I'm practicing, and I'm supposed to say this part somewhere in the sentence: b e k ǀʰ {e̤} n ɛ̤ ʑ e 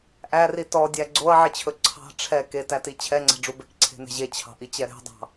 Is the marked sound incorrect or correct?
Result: correct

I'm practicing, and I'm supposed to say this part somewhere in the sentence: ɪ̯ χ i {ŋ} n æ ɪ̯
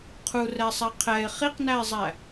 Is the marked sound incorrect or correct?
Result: incorrect: q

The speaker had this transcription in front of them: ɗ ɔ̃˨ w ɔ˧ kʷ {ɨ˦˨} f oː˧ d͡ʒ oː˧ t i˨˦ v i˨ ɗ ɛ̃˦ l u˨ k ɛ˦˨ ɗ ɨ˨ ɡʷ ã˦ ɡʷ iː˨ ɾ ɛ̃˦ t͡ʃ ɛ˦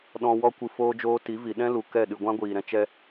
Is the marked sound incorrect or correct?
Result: incorrect: ɨ˨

